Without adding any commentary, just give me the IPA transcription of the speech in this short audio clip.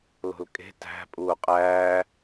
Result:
l o̤ l kʼ e̤ t æ̤ pʼ uː qʼ æː

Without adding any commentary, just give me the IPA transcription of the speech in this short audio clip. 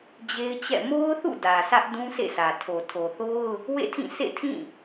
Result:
d͡ʑ e˦ ɪ̯ t͡ɕ ɛ̰˦˨ m o˦ ʊ̯ θ ṵ˦˨ d ä˨ sʰ ä˦ ʔ d ũ˦ sʰ ḛ˦˨ s ä˨ tʰ o˨ tʰ o˨ θ o˦ ʊ̯ | w ḛ˦˨ tʰ ĩ˦˨ sʰ ḛ˦˨ tʰ ĩ˦˨

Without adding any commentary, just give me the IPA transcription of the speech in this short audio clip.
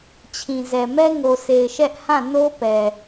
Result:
t͡ɕʰ ĩ˨ z ɛ˨ m ɛ˦ ŋ o˨ s e˨ ɪ̯ ʃ ɛ˦ ʔ h ã˦˨ n o˦ p ɛ˨

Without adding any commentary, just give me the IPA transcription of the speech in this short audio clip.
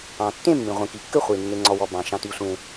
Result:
ɑ̃˩ tː ẽ˥˨ mː ĩ˩ ʁʷ ĩ˩ k i˩ kː ɘ˥˨ χʷ i˩ nː e˩ ŋ͡ǀ ɔ˩ w ɔ˩ b ɑ̃˩ ʃ ɑ̃˩ t i˩ sʷ ẽ˩

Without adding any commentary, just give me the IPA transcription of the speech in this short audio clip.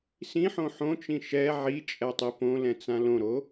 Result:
s ĩ ħ õ ħ õ t͡ʃ ĩ ʃ ɛ ʕ i t͡ʃʼ ɛ tˤ i p õ l ɛ̃ t͡s ã l õ ɾ o

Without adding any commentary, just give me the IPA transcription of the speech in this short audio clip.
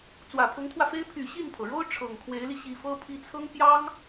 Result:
t͡s w ä˨˩ pʰ ʊ˧˥ ŋ t̪ʰ w ä˧ f e˥ ɪ̯ pʰ y˨˩ ɕ i˥˩ n pʰ ɤ˩ ɻ o˥ ʊ̯ ʈ͡ʂʰ ɤ˨˩ ŋ kʰ w e˧˥ ɪ̯ l i˧ ɕ i˨˩ f ɤ˥ pʰ i˧˥ t͡sʰ ɤ˥ ŋ p j ɑ˥ ŋ

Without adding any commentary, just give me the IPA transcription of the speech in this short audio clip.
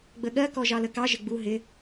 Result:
ɡ͡b ə ɠ ɜ k ɔ ʒ ɑ l ə k ɑ ʒ ɪ ɡ͡b u ɦ ɪ

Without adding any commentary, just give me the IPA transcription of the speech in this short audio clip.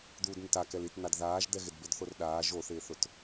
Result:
d̪ uː d n̪ ɪ t a k ɛ l i t n̪ a d ð aː ʒ d̪ ɛ ɣ ɪ d b ɪ d θ o r ɗ aː ʒ o θ ɪː θ ʊ t

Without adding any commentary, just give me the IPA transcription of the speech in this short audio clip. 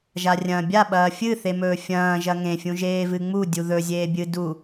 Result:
ʒ a rʲ ɐ̃ː bʲ a ɓ ɐː fʲ ɨ θ e m ɵː fʲ ɐ̃ː ʒ ɐ ŋ ẽ fʲ ũ ʒ eː v ɨ ŋ͡m u dʲ u ð ɵ zʲ eː bʲ ɨ d u

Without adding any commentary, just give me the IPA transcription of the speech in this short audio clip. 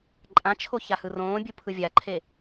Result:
ǃʼ ã t͡ʃʰ o ç a h ɯ r õː bʲ u pʰ ɯ vʲ a ǃʰ e

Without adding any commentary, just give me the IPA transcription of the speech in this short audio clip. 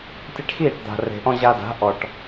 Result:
tʲ e˧ ʈ x iː˥˩ ʈ d̪ a̤˩ r e̤˩ ʔ ɔ̃˧ ʑ a˧ d a̤˩˥ ʔ ɔ˩ ʈ

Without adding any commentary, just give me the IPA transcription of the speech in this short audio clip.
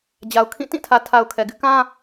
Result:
d͡ʑ a˨ ʊ̯ kʰ ĩ˦˨ t ĩ˦˨ tʰ ä˨ tʰ a˨ ʊ̯ kʰ ɛ˨ ɡ ɪ˦ ʔ k ã˦

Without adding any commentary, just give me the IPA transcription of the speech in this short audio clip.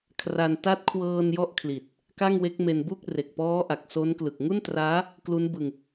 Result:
kʰ r a˧ n t a˦˥ t̚ kʰ w ɤː˧ n j ɔ˥˩ ʔ kʰ l i˨˩ t̚ | k a˥˩ ŋ w e˦˥ k̚ m e˧ n b u˥˩ k̚ r e˨˩ k̚ p ɔː˦˥ ʔ a˨˩ k̚ s o˦˥ n k l ɯ˨˩ k̚ ŋ u˥˩ n t r aː˦˥ | k l u˦˥ n b ɯ˧ ŋ

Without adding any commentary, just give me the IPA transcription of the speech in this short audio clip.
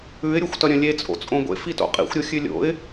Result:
ʉ ɪ̯ ɾʲ o xʷ t ɐ ɾʲ ɐ̃ lʲ e t͡sʼ o̰ t͡sʼ õ ɡʷ ḛ f i t o̰ qʼ ḭ xʷ ɾʲ o xʲ ʉ lʲ o̰ ɪ̯

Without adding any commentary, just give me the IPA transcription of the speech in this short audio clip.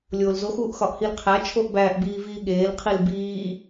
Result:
lʲ oː l z o x uː ʔ x ɒ ʔ h i l qʰ æ t͡ʃʰ o ʔ b æ ʔ b iː v iː ɠ eː l qʰ i l b iː

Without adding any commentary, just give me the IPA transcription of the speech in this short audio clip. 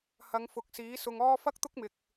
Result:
h ɐ˨˧ ŋ f ʊ˨ k̚ s iː˨˥ s ʊ˧ ŋ ɔː˥ f ɐ˥ k̚ t̪ ʊ˥ k̚ m ɪ˧ k̚

